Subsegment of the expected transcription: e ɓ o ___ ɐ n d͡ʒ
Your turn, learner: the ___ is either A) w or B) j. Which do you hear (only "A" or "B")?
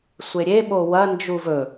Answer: A